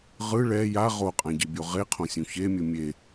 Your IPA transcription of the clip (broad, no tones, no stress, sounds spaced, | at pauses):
ʁ ɯ ɭ ɛ j a ʁ o qʼ ã ɟ i bʲ o ʁ e qʰ õ sʲ ũ ç e mʲ ɯ mʲ e